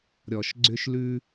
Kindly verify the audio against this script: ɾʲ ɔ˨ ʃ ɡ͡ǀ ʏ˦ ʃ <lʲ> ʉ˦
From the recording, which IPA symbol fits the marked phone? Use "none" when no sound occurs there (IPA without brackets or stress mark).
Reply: l